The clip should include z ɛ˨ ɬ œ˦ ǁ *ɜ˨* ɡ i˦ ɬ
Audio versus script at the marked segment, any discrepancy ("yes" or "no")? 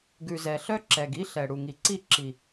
yes